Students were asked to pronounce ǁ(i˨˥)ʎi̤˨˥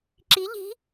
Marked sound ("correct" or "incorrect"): correct